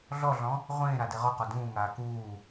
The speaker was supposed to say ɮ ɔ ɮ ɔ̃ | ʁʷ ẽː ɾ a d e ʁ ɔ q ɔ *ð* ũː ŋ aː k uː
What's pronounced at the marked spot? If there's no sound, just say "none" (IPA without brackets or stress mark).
d